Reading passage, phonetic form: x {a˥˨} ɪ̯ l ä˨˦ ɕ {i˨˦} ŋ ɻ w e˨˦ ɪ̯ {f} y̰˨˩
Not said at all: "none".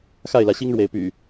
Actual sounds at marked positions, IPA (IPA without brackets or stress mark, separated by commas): a˥˨, i˦, p